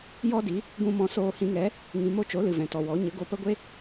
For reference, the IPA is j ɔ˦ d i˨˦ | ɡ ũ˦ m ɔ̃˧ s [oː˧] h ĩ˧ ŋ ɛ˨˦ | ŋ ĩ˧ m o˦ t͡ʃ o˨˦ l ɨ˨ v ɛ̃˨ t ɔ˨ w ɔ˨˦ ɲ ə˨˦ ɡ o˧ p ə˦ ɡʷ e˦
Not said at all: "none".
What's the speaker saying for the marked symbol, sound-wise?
oː˧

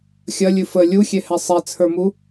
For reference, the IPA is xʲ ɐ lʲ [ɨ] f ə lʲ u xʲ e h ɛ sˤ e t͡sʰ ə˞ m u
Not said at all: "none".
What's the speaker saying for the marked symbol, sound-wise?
ɨ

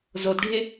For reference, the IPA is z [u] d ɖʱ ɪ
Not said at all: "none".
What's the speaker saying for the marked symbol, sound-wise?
o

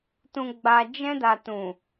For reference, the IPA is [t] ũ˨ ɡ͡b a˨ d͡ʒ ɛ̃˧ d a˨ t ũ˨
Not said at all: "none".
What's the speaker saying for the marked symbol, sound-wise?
t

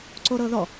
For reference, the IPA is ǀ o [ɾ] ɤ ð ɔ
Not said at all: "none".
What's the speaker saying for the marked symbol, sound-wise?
ɾ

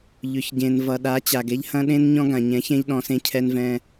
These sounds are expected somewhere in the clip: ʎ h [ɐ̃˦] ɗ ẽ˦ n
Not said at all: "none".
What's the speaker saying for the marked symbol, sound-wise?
ɐ̃˦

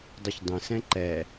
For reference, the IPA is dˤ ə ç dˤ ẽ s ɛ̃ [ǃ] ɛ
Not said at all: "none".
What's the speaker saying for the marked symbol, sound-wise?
ǃ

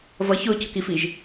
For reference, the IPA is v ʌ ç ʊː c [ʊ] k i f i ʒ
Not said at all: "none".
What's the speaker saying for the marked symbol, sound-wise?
ʊ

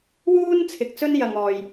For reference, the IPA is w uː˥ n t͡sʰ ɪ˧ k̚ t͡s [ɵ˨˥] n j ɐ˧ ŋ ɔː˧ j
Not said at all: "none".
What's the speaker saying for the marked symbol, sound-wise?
ɵ˥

